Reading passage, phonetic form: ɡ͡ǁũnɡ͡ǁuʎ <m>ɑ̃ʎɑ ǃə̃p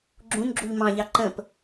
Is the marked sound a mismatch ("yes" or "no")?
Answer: no